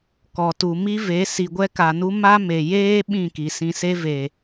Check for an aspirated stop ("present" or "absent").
absent